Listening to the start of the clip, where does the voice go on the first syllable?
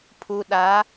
low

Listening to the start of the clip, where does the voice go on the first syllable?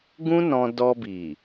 high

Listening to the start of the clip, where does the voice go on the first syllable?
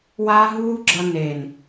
high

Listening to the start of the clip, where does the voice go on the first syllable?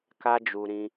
high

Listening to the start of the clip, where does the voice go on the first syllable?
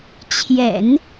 low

